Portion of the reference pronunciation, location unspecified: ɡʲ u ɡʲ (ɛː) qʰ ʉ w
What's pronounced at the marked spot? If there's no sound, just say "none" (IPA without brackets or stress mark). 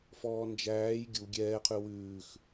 ɛː